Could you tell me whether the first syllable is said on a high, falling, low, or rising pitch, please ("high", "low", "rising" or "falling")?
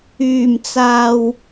low